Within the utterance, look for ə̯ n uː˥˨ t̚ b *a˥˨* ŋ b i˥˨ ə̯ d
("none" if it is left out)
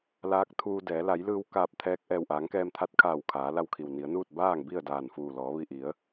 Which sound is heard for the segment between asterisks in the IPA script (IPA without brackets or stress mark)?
aː˥˨